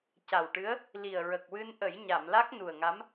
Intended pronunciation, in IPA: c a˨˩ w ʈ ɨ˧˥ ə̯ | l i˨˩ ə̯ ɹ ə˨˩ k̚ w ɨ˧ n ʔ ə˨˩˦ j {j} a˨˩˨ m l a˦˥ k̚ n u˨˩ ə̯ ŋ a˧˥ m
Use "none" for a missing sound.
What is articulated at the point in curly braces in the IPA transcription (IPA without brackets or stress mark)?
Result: ɲ